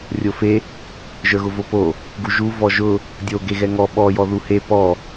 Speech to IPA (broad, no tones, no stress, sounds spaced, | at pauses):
rʲ o f e | ʒ ə˞ ɣ ʊ v o p o | ɡ u ʒ u v ɔ ʒ ʊ | dʲ o ɡ e ɣ ɛ ŋ ɔ ɓ ɔ j ɔ ð u h e p ɔ